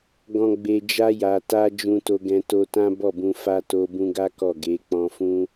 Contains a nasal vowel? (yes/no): yes